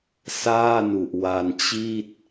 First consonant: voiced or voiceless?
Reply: voiceless